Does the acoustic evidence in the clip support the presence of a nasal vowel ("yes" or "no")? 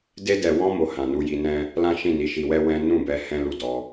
yes